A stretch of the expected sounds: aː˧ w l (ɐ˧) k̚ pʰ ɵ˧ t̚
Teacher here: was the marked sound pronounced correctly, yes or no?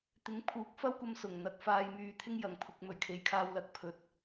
no